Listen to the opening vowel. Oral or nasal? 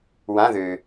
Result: nasal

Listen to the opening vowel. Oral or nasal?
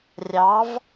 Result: oral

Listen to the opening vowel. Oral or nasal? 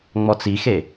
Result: oral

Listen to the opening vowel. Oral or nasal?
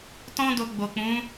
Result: nasal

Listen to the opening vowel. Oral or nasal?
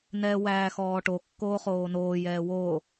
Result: oral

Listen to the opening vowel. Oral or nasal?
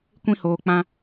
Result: nasal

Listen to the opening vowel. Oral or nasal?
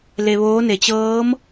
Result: oral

